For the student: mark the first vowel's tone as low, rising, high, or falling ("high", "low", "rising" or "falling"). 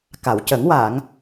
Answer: low